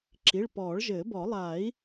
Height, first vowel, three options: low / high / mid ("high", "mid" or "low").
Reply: high